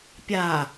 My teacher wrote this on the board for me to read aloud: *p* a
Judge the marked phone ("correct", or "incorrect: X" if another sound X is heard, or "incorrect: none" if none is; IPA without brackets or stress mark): incorrect: pʲ